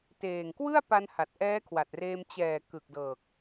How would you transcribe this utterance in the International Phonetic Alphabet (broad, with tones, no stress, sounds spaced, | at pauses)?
t eː˨˩ ŋ k w ɯ˥˩ a̯ p a˧ n h a˨˩ t̚ ʔ ɛː˦˥ kʰ w a˨˩ t̚ r eː˧ m t͡ɕ ɛː˨˩ k ɯ˨˩ k̚ d ɤː˨˩ k̚